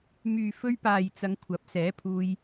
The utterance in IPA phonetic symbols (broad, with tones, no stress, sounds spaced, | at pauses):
m yː˨ f ɵ˧ ɥ p aː˨ j t͡s ɐ˨˧ ŋ kʷʰ ɐ˨˥ p̚ s ɛː˨˥ pʰ uː˧ j